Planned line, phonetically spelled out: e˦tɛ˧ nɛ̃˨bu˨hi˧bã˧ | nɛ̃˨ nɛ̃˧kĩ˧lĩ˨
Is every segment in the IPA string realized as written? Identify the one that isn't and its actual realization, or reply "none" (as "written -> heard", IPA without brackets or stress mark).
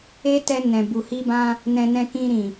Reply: l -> ɾ